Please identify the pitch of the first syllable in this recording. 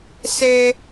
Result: low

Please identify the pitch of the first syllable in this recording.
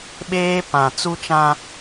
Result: high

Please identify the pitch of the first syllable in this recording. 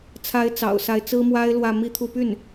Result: rising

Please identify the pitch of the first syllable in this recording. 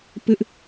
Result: high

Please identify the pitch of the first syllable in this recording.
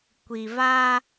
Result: low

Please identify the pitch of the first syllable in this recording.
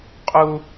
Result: high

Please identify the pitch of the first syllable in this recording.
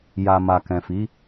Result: low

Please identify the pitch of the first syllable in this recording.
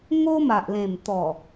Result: high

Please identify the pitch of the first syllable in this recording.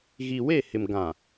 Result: low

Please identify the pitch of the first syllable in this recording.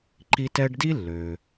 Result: high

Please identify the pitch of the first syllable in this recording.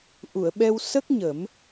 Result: low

